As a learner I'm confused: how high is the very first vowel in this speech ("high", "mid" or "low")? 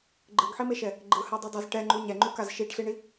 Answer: high